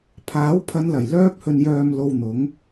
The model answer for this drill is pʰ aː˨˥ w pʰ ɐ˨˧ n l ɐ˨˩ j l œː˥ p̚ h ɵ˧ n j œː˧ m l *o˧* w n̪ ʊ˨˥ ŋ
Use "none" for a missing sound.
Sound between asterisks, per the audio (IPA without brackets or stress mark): o˧